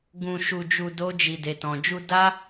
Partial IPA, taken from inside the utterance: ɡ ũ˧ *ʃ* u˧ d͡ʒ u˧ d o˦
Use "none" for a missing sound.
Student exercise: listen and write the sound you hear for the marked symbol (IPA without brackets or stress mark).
ʃ